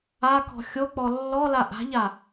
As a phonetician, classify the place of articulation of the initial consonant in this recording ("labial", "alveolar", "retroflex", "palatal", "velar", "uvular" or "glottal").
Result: velar